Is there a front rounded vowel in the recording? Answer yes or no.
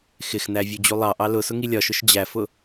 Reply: no